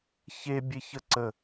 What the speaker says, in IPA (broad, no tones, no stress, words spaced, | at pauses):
çebʲeçə ǀə